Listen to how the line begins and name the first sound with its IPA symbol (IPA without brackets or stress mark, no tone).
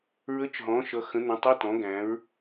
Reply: ɹ